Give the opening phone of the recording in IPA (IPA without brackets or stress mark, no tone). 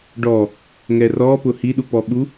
ɖ